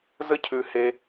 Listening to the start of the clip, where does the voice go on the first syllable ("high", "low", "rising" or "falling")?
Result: high